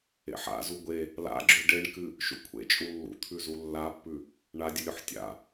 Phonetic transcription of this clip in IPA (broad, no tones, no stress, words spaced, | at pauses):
ḛħa̰zu ɡʷe | la̰ɡ͡ǁʉ ɖeɳkɨ | ʃṵkʷʰḛt͡ʃʼu lːṵt̪ʰʉzu lːapːʉ | ɳadʲɨlʲoħ tʲa̰